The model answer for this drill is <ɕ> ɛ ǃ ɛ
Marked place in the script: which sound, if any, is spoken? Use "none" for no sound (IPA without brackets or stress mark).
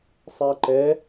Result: sˤ